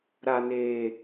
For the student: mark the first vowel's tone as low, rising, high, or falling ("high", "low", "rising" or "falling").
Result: high